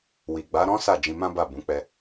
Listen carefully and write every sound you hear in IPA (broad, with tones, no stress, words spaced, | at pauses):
wi˨ ɡ͡ba˨˦ɾɔ̃˦ sa˦˨d͡ʒĩ˧mã˦ba˦˨ bũ˨˦k͡pɛ˧